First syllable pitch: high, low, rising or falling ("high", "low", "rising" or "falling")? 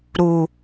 low